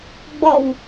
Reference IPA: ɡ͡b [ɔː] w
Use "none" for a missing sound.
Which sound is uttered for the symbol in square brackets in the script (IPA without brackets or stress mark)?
ɔ